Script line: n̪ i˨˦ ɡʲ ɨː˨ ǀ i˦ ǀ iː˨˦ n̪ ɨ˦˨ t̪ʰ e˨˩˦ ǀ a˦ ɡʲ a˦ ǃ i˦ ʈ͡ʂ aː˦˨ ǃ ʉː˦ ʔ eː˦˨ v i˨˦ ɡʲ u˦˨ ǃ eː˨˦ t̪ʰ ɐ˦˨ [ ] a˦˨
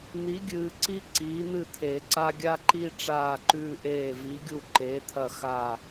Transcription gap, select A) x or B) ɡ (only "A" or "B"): A